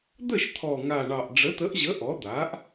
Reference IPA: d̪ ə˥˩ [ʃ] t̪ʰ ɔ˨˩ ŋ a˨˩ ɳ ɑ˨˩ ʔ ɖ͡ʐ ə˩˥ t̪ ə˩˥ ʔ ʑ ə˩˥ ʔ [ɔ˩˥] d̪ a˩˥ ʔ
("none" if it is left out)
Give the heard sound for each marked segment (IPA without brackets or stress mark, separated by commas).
ʃ, ɔ˩˥